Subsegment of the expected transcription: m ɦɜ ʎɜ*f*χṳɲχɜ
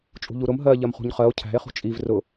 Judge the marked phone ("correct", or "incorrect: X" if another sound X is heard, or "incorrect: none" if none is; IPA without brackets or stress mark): incorrect: m